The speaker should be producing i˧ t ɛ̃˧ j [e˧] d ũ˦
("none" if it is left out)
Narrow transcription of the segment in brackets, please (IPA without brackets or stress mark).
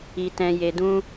e˧